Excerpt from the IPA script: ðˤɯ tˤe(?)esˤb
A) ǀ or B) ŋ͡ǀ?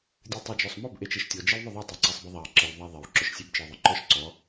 A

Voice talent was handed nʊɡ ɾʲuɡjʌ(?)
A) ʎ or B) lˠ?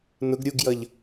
A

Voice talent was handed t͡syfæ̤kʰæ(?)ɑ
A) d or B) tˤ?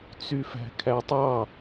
B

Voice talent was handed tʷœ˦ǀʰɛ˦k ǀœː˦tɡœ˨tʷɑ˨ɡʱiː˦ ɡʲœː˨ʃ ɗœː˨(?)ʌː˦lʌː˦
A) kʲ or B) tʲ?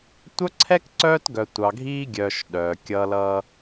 A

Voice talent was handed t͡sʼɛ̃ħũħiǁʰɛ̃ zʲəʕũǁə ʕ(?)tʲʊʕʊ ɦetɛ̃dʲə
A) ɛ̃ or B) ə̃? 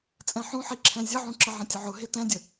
B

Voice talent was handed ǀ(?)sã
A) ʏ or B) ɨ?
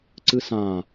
B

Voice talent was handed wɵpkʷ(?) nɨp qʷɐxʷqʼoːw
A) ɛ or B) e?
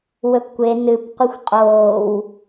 B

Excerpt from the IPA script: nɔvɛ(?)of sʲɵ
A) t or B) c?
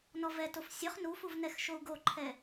A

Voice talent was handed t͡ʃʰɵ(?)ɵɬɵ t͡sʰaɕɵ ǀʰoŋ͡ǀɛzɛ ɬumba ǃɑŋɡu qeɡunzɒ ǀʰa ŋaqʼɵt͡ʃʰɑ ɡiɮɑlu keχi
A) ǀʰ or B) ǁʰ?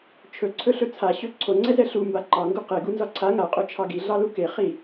A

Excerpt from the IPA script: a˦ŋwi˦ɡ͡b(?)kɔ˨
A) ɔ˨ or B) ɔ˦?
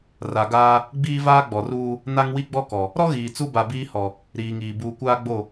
B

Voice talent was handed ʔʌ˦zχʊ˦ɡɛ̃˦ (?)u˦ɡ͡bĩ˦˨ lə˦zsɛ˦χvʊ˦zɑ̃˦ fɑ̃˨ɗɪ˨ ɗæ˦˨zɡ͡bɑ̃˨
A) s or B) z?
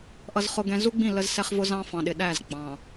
B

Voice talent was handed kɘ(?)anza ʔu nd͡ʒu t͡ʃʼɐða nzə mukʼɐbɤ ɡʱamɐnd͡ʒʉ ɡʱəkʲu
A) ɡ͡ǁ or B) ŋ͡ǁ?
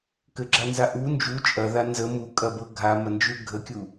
A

